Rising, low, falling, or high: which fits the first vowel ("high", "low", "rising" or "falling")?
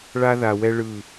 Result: high